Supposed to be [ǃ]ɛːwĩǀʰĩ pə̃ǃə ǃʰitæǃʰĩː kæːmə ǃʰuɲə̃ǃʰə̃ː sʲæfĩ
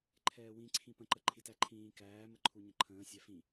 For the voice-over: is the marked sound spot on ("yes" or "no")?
no